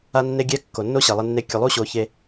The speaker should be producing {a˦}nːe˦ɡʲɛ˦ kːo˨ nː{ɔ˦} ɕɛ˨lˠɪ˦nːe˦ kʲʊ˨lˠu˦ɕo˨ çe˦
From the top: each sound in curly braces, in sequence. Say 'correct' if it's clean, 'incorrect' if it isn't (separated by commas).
correct, incorrect